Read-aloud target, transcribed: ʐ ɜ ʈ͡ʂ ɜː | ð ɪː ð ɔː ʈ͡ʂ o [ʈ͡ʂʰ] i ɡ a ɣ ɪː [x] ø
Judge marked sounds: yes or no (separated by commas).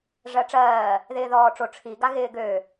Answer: yes, no